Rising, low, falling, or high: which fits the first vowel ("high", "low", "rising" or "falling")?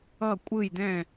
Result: falling